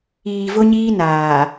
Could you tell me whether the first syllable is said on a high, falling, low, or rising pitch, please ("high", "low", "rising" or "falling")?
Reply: low